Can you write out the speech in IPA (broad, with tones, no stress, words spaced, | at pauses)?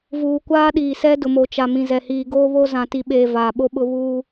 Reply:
vuː˨kʷaː˦ɗiː˨sɛ˦ dʊ˨mo˨t͡ʃa˨ mĩ˨zɛ˨hiː˨ ɡoː˦βo˦zã˨ ti˨ɓeː˨ vaː˨ɓo˦ɓʊ˦ βuː˦